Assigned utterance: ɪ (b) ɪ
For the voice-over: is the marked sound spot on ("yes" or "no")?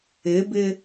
yes